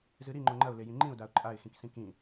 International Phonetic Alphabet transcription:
zɨɾi ŋ͡ǃoŋ͡ǃɐʊ̯ lejĩŋ͡ǃĩʊ̯daʊ̯ ǃʼaɪ̯xĩksĩ kĩ

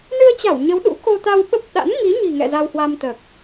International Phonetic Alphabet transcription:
nɨ˧ə̯t͡ɕa˧˩w ɲə˨˦wɗṵ˧˥ ko˧t̪a˧wɓə˦˥p̚ ɗa̰˧˥nŋi˨˦ɲi̤˨˩ŋɛ̰˧˨ za˧whwa˧mt̪əː˨˩k̚

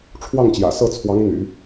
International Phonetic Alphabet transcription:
ʈ͡ʂʰwɑ˥˩ŋt͡ɕjä̰˨˩sɤ˥˩t͡sʰwɑ˧˥ŋ n̪y̰˨˩˦

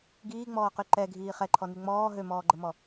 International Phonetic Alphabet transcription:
ɡiːŋ͡mɔːqy ǃɛɡʱiː χɛǃʰɔny ŋ͡mɔː ɦømɔːɡ͡ǃəmɔ

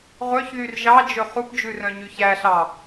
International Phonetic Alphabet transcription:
ʁʷœçðyr ʒɑd͡ʒɵ χupd͡ʒʉ rœ̃ɲyçæɬɑ

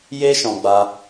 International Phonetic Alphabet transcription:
je˦ʃɔ̃˧ ɡ͡ba˧

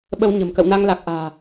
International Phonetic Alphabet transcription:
ɓə˧wɲə̤˨˩m kə̰˧˨wna˧ŋ la˨˩k̚ʔa̤ː˨˩

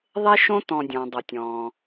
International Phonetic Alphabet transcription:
ðˤe˦ʃõ˦ tɔ̃˨dʲɔ̃˩dˤo˩tʲ ɔ̃˩

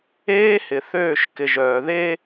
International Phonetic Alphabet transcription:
eː˦hɪ˨ θøː˦˨ʃkɪ˨ʒœː˨ ðe˦

